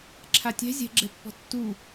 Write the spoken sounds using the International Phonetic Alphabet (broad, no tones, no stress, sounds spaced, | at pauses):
ǁʰ a tʲ ɛ̤ zʲ ɛ̤ ɡ͡ǁ ɛ pː ɔ̤ tː u